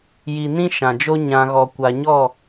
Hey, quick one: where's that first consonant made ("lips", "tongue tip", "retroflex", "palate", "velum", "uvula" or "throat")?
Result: palate